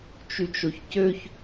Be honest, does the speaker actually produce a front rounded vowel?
yes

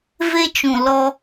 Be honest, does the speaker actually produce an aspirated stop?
no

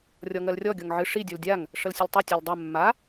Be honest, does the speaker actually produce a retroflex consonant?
yes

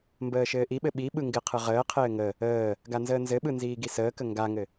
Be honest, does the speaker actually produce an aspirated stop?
yes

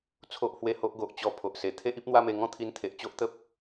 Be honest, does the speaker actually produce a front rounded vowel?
no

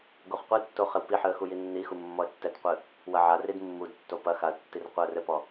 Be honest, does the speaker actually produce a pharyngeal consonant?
yes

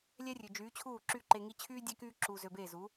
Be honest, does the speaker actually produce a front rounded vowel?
yes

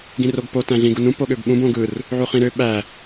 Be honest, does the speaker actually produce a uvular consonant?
yes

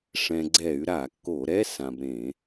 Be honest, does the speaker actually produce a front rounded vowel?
yes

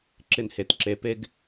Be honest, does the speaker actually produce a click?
yes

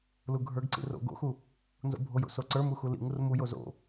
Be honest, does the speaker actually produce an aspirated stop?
no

